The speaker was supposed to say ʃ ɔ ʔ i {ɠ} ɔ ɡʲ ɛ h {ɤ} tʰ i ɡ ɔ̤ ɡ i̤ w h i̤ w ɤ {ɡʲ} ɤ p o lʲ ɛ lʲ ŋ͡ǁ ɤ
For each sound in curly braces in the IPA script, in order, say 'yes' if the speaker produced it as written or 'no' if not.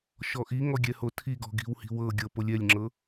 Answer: no, no, yes

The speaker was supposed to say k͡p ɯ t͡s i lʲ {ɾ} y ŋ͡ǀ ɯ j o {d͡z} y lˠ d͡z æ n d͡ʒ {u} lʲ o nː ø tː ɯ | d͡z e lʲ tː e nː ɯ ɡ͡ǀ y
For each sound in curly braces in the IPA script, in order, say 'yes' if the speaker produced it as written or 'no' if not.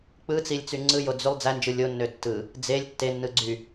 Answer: no, yes, no

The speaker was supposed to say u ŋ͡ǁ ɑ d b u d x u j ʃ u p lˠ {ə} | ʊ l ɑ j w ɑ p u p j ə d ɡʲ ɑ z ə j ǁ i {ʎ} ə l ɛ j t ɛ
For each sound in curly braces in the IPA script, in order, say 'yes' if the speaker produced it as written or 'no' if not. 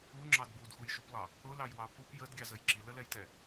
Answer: no, no

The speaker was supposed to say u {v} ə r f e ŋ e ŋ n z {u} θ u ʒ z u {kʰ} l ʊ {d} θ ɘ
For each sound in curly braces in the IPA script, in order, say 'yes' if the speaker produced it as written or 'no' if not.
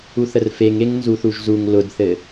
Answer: no, yes, no, yes

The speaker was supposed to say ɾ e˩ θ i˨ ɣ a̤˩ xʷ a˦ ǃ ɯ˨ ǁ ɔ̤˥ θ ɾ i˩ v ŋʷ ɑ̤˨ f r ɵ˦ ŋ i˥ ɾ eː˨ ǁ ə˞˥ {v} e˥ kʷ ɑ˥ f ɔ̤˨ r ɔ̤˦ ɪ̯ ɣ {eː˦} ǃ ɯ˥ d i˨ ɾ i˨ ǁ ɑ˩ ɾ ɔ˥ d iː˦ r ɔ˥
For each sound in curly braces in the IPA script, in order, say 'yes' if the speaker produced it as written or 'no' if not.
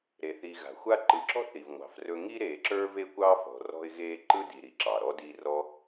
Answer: yes, yes

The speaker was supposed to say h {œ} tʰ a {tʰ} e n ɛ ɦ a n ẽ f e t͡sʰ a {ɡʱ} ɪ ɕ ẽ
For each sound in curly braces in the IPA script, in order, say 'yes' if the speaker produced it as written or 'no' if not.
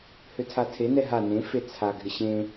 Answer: no, yes, yes

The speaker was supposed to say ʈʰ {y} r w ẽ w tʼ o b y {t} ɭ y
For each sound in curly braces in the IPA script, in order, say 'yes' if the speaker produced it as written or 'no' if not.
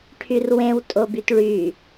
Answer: yes, yes

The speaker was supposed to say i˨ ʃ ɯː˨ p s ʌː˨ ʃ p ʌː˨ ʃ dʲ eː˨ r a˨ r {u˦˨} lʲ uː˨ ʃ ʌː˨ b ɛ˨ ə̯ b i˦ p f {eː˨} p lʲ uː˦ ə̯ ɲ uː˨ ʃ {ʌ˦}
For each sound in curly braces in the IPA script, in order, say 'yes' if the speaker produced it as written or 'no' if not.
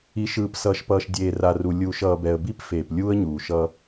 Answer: no, yes, yes

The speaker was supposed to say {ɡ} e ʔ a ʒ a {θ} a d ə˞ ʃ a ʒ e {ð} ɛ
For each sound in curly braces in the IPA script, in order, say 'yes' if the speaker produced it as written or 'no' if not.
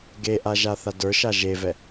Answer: yes, yes, no

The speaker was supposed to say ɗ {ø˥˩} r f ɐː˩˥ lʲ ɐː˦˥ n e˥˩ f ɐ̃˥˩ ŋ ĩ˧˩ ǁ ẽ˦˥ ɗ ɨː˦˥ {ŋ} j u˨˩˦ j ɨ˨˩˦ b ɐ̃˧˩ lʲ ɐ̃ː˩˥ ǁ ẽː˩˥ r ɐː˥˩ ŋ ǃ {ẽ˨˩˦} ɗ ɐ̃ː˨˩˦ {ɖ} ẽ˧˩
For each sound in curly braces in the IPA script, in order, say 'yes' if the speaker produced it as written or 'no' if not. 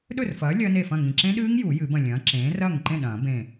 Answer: no, yes, no, no

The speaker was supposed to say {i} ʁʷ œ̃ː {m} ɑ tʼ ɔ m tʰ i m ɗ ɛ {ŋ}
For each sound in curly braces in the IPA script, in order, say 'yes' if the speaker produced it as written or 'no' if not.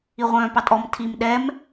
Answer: yes, no, no

